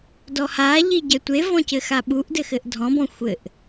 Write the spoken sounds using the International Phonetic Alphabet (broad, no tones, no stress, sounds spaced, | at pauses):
d ɔ h a ʎ i ɟ ɛ tʷ e v ɔ̃ c ɘ x a ɓ u ʔ d ɘ x ɘ ʔ dʱ ɔ̃ b ɔ̃ xʷ ɘ ʔ